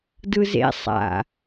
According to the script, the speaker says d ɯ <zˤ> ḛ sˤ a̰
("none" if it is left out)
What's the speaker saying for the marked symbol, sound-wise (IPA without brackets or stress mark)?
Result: z